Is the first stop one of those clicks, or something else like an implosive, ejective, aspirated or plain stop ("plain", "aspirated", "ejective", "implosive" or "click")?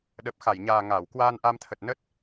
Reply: implosive